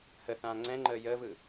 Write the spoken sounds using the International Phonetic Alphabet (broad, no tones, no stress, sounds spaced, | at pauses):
h ə θ ãː ŋ͡ǀ ɛ̃ ŋ͡ǃ əː j əː v ɯ